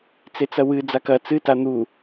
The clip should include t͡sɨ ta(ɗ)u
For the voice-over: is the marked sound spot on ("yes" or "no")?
no